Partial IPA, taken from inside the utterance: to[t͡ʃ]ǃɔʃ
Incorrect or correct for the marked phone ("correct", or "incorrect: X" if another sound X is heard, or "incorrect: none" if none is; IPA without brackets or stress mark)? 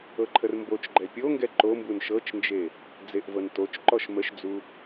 correct